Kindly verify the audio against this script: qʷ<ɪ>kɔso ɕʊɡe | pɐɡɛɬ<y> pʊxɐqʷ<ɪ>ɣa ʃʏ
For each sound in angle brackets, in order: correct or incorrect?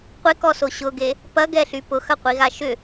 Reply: correct, correct, incorrect

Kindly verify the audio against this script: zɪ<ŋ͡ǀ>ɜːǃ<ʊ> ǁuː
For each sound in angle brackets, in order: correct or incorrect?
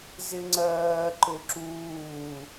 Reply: correct, correct

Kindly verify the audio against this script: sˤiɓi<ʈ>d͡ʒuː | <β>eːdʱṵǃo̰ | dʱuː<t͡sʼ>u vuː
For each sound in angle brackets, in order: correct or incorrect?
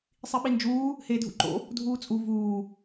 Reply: incorrect, incorrect, correct

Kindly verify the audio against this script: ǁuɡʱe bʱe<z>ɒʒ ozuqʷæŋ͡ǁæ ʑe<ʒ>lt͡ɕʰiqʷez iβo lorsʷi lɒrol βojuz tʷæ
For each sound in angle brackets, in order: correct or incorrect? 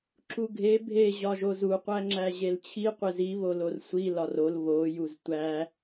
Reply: incorrect, incorrect

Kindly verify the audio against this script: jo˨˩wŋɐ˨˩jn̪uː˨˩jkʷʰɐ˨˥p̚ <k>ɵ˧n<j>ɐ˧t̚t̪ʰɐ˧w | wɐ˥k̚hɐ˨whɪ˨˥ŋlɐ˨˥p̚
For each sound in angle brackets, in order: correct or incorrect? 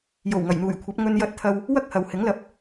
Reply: incorrect, correct

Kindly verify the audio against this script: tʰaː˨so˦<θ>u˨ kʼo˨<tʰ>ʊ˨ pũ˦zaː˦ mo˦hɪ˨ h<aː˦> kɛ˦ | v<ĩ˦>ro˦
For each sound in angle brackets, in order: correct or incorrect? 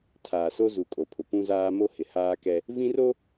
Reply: incorrect, incorrect, correct, correct

